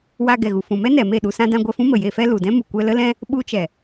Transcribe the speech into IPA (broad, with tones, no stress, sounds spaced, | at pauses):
w a˧ ɡ ɛ˨ ɣ u˨ f ũ˨ m ɛ˦ n ɛ˨ m e˦˨ ɗ u˧ s ã˦ d ã˦ ɡʷ ɛ˧ f ũ˦ m ə˨ j e˧ f ɛ˦ l u˨ d ɛ̃˦ m u˨ kʷ ɛ˧ l ə˦ l ɛ̃˦ | ɓ u˧ t͡ʃ ɛ˨